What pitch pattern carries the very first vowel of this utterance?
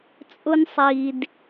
high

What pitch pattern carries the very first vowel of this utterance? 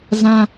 high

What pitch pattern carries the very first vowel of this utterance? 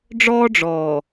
high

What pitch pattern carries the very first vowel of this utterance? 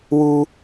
high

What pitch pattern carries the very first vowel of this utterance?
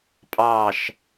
falling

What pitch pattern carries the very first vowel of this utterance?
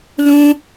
high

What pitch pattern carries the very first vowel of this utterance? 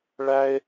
high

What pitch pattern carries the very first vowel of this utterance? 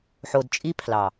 low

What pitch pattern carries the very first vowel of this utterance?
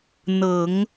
low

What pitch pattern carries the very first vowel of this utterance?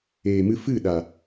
low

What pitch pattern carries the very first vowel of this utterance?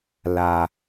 high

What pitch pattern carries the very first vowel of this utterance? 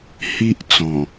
high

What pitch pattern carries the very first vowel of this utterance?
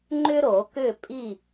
high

